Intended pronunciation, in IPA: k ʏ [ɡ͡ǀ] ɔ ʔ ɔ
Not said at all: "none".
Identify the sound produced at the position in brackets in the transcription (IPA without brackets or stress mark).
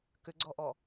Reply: ɡ͡ǀ